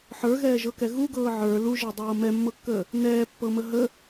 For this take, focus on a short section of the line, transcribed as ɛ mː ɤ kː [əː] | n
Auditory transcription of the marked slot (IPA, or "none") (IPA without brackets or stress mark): əː